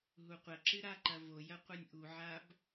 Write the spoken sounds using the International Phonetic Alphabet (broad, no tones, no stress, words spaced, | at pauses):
ɦuqʷɐǁɨ ɾaǃɐvojɐ qʷɨnʲʔuʕab